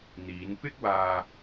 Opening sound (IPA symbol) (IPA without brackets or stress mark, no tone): n̪